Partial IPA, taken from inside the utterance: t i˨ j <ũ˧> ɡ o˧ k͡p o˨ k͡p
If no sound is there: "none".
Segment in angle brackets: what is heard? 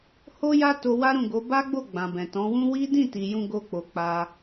ũ˧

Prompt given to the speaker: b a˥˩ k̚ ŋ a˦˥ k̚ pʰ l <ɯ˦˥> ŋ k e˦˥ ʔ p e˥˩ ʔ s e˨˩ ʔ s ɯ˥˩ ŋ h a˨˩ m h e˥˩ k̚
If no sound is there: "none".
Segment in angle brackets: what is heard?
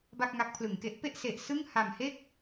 ɯ˩˦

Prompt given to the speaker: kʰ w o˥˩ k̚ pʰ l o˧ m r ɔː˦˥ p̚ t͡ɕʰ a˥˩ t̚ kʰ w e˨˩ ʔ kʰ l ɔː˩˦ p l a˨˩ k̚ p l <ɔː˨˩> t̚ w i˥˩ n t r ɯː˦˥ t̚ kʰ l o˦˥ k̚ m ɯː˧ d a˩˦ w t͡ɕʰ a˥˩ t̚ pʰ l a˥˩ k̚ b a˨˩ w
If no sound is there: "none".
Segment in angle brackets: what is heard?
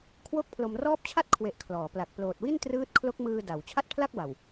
oː˨˩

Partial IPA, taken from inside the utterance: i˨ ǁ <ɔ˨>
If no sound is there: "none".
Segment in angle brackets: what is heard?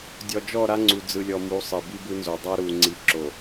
o˨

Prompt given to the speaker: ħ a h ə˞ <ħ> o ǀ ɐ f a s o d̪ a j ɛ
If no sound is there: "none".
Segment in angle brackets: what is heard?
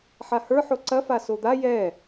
ħ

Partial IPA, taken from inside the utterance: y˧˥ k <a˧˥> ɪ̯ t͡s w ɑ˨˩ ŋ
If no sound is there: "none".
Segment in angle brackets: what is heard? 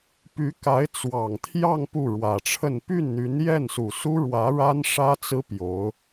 a˧˥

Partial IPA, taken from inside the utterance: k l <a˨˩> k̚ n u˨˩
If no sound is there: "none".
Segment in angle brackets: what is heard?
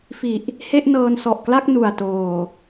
a˥˩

